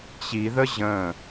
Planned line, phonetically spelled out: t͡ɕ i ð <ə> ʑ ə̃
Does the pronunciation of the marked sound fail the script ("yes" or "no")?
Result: no